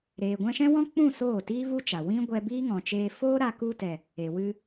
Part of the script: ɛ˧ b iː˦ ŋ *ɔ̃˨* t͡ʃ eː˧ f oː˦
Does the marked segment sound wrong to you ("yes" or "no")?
no